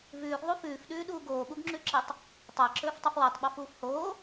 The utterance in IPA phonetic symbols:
v ʉː ɡ ðˤ u f ʉː f ɗ ʉː ɗ uː ɡ oː ɓ u ɡ ŋ͡ǁ ʉ ǁ e tˤ | tˤ a ǁ ɵː f tˤ u f w a tˤ ɓ a f uː f h oː

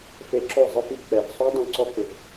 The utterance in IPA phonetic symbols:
f e˧ ǁ o˦˨ zˤ ɪ˦ f i˧ k͡p ɛ˨ v sˤ o˦ dˤ õ˦˨ ǀ ɔ˦ k͡p ɪ˨ v

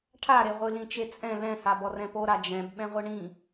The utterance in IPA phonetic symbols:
ʈʰ a ɾ e ʁʷ ɨ l ĩ t͡ʃ e t͡sʼ ɛ̃ l ɛ̃ h a b ɔ r ɛ̃ p o ɾ a d͡ʒ ɛ̃ b ɓ ɛ̃ ʁʷ ɨ ɳ ĩ

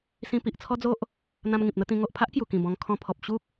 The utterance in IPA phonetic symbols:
s ĩ˧ p i˨ ʔ t͡sʰ ɔ˦ d͡z o˦ ʔ | n̪ ã˧ m ŋ ĩ˨ p̚ n̪ ə˥˧ t̪ ĩ˧ ŋ o˨ ʔ pʰ a˦ ʔ k j u˨˩ k ĩ˨˩ b ɔ̃˧ ŋ kʰ ɔ̃˧ pʰ ɔ˨ p̚ ɕ u˦ k̚

